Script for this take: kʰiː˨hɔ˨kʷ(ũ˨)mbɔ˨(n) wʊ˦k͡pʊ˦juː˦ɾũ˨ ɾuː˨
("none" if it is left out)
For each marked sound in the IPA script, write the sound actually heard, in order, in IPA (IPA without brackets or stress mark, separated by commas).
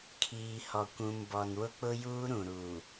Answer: ũ˨, n